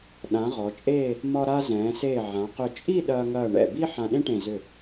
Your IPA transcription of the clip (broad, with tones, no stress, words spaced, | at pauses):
ɗã˩˧ ʁɔ˩˧t͡ʃʼeː˥˧ | mɒ˧ɾa˧ zɛ̃ː˩˧seː˧˩ ʕã˩˧qʏ˧˩ t͡ʃʼi˥˧ ɗɐː˧ŋɐː˧˩ɳɛ̰˧˩ bi˥ ħã˧ɗẽ˥ʈẽ˧˩ zʏ˧˩